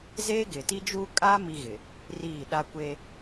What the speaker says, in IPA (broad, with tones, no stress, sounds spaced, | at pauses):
z eː˦ ɡ ɪ˨ t i˦ d͡ʒ uː˦ kʼ a˦ m i˦ ɣ ɪ˨ | r iː˦˨ ɗ a˦ kʷ e˦